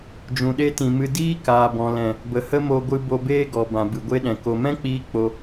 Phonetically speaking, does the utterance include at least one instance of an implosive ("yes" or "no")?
yes